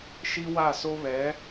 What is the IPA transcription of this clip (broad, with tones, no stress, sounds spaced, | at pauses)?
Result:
ʃ i˦ w a˦˨ s o˦ β ɛ˨˦